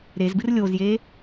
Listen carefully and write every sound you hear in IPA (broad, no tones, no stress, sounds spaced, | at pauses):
ɾ e z b ɨ r lʲ o z j e